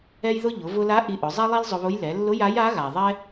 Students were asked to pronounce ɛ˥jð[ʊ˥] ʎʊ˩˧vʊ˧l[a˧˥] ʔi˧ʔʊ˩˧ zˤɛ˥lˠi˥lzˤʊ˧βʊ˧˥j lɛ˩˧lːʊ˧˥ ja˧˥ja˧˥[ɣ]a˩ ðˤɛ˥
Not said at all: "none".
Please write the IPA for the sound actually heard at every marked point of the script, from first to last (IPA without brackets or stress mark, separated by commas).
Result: ʊ˥, a˧˥, ɣ